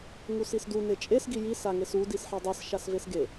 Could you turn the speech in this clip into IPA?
ŋusisdu net͡ʃʼesɡi jisaŋes u disħɑdˤes ʃasvesɡe

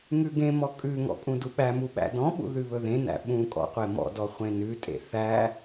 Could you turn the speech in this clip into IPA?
ŋʉɡẽmɔ kʼʉŋɔ̰ kʼũduɓæmu ɓæ̰dɔ̃ɓṵ ðʉβɵðẽnæ̰ ɓũ kʼɔ̰qʷemɔ̰dɔ χʷẽnʉtʼḛ θæ

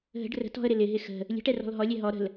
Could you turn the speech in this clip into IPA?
ɦə̤ɖ rə̤t ɔ̤ə̯ɾɪ lɪɦɪ xə̤ | lʲə̤ʈɛrɔ̤l ɦɔlʲɛ ɦɔ ɾə̤l

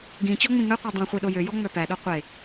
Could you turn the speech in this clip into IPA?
ɡĩ t͡ɕɔŋ͡mĩŋœqʷe dˤĩ χʷiɗojøjɔ ŋ͡mœpæɗo qʷe

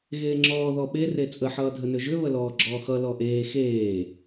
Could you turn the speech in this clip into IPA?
ɣeːŋ͡ǁɔː ðɔɓe ret͡sʼə ħʌːdʱənʏʒʏ βəlɔːɡ͡ǁɔːxʌ lɔʔeː xeː

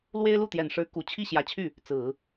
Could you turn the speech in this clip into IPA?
lwe˥ɪ̯lu˥˩t̪jɛ˨˩nʂɻ̩˧˥ ku˨˩ t͡ɕʰi˥˩ɕjä˧˥t͡ɕʰy˥˩ | t͡sɹ̩˨˩˦

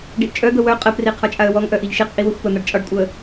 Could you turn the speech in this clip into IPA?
ɖiʔt͡ʃʼœd̪ə wœ qʼəpri qʰɒt͡ʃʼaə̯wɔŋʔœ ʔiʎʃiqʔi wəxʷpən̪aɖ t͡ʃʼɒɖkʷʼœə̯

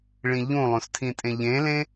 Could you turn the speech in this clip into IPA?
ɭĩʎũlˠõs tʰĩtʼẽʎẽlẽ

